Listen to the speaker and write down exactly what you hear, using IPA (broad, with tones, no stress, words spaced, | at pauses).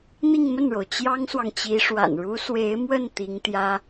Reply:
n̪i˥˧ŋmə˥˩nɻo˩ʊ̯ t͡ɕjɑ˥ŋswɑ˨ŋt͡ɕi˧˥ʂwa̰˨˩n ɻu˧˥swe˧˥ɪ̯mwə˥˩n t̪i˧˥ŋt̪jä˥